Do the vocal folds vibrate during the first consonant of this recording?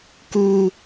no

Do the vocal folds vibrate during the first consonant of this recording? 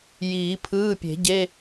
yes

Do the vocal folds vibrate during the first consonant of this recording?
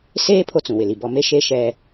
no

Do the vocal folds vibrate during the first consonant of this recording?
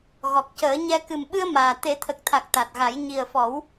yes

